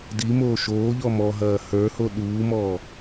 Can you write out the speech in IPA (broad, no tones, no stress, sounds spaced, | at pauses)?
d i m oː ʃ oː ʎ ɔ m ɔ ɦ ɐː h ə˞ h o ɗ uː m ɔː